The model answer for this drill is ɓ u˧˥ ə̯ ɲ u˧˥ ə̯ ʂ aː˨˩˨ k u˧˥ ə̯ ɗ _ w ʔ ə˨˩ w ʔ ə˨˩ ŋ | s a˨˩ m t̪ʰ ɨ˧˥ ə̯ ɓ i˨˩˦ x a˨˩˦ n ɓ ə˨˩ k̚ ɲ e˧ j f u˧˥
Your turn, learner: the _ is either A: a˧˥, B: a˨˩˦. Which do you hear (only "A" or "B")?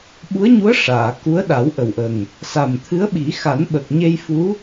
B